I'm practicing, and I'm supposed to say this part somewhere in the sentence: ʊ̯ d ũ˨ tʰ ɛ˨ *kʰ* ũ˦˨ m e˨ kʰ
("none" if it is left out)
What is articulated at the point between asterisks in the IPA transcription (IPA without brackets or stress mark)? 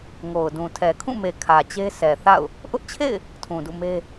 kʰ